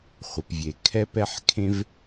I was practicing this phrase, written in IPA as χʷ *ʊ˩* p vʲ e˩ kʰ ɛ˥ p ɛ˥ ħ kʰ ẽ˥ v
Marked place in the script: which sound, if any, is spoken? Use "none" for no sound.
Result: ə˩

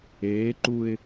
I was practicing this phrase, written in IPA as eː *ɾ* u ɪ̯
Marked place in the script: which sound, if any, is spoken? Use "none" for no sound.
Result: ǃ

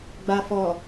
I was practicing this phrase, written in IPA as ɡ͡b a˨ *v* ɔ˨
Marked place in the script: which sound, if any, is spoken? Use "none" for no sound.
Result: f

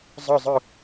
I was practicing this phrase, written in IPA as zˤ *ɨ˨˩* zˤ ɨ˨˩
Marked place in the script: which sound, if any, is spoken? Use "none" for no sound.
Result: ɨ˨˩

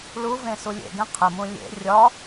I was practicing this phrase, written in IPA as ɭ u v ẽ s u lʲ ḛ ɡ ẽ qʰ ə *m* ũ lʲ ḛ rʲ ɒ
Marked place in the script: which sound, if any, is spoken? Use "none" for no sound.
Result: m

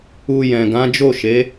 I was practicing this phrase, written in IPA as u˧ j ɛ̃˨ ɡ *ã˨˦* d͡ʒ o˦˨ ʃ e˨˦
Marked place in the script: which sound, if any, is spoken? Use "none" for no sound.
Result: ã˨˦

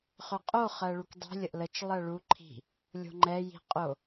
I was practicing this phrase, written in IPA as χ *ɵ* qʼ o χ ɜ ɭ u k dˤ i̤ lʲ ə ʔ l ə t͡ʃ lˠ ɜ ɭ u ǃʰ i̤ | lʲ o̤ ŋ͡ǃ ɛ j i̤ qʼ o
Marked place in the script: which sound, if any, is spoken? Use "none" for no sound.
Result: ɵ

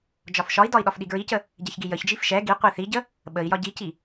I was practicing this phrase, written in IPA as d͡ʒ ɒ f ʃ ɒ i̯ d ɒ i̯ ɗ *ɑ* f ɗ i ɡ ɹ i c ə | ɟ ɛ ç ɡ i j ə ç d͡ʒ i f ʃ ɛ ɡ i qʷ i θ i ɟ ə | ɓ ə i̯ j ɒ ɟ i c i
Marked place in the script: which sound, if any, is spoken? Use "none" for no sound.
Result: ɒ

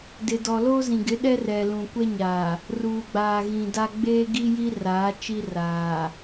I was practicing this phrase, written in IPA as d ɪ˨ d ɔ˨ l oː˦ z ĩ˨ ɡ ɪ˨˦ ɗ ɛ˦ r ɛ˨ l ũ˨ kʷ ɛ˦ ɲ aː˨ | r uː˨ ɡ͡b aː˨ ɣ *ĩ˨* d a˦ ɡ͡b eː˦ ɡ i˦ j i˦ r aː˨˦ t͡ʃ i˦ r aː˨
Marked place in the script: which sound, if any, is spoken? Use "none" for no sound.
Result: ĩ˨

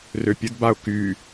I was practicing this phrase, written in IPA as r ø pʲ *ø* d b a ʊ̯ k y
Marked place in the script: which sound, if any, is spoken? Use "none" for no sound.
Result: ə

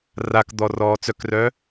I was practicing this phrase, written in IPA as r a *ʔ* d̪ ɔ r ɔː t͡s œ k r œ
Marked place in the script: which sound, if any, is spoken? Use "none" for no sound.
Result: k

